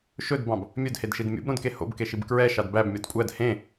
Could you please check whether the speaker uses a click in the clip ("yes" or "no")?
no